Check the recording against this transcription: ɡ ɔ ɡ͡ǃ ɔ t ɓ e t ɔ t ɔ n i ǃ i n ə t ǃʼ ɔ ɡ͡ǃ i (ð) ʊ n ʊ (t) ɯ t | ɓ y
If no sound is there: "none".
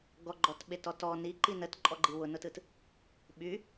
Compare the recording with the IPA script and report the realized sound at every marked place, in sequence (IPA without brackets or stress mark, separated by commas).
w, t